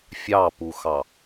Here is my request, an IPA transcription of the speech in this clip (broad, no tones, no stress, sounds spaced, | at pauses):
fʲ ɑ p u x ɑ